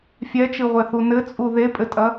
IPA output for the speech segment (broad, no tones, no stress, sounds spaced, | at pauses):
fʲ ɛ t͡ʃ ɨ ʁʷ ɛ θ u n ɘ t͡sʼ u ð e pʼ ɘ tʼ ɐ